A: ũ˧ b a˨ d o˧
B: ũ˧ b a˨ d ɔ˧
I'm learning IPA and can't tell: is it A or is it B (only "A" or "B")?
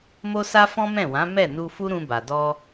B